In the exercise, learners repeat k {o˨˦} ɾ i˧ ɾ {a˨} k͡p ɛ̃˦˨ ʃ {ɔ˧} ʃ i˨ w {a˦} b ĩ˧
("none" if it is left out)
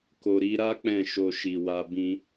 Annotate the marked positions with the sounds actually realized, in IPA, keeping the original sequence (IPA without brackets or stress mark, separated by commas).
o˨, a˦, o˧, a˧